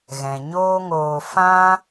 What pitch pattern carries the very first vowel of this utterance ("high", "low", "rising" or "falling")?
low